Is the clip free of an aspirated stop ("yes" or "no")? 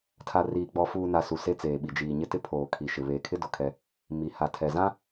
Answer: no